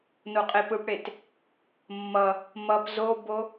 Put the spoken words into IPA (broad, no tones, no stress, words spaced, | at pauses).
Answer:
noqʼepɯpɽet | mːʌ | mʌp zobo